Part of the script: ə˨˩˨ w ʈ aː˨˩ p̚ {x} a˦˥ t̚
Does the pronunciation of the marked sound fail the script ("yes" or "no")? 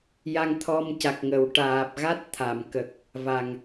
yes